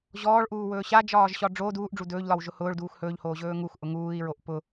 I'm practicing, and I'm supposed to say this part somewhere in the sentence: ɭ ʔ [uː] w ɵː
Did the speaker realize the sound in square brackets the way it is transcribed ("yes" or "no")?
yes